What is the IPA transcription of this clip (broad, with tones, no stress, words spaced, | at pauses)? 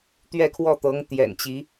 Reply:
t̪ɥɛ˥˧kʰwɔ˥˩t̪ɤ˧˥ŋ t̪jɛ̰˨˩nt͡ɕi˧˥